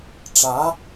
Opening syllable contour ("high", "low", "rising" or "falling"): rising